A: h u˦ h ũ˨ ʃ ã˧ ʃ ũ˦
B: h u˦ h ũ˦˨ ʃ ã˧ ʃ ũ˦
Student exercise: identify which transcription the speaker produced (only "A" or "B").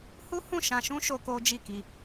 B